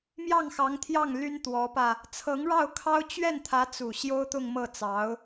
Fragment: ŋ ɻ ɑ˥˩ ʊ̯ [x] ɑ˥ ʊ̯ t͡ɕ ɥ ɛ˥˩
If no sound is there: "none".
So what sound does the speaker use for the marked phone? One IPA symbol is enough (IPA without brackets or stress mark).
kʰ